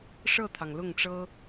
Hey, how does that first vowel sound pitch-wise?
falling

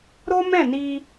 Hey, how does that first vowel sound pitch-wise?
high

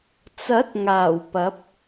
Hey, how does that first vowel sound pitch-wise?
rising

